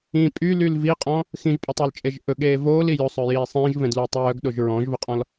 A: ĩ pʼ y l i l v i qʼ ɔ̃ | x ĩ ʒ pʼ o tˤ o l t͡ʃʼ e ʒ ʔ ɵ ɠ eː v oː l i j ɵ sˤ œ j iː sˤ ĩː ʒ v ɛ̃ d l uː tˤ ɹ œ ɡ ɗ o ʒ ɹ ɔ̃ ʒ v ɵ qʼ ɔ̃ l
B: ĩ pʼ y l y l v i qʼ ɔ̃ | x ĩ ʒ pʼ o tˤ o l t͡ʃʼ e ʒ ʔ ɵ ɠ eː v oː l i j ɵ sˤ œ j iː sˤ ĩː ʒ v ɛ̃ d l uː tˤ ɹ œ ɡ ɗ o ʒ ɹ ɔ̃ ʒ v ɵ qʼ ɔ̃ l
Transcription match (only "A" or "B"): B